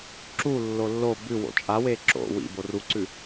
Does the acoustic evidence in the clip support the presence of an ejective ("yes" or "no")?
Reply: yes